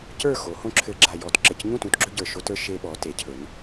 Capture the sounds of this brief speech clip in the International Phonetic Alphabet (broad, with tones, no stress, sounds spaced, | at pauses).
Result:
c ə˞˥˨ x o˩˧ h õ˦ ǁʰ ɘ˧˩˧ ɡ͡ǁ a˨˩ j ɔ˧˩˧ t ǁ ɘ˨˩ c ɲ ũ˥˨ t ũ˦ t ɡ͡ǁ ɵ˦ ɟ ə˞˨˩ ʃ o˦ t ə˞˦ ʃ e˦ ɓ ɔ˩˧ t e˩˧ cʰ ɵ˩˧ n